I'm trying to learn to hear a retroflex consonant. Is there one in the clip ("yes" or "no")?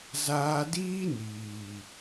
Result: no